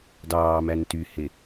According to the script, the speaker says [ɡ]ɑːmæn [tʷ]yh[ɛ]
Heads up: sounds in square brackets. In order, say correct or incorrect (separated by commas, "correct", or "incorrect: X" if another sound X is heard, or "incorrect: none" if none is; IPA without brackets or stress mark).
incorrect: d, incorrect: t, incorrect: e